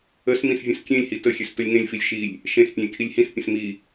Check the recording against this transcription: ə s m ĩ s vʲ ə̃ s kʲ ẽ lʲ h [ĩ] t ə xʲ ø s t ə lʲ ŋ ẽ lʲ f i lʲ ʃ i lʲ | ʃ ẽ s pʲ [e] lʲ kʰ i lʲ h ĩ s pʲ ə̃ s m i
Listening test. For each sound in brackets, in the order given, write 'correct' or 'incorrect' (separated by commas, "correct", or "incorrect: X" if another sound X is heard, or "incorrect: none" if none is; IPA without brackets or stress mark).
incorrect: i, incorrect: ẽ